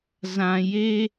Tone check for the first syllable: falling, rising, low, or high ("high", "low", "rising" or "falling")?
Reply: low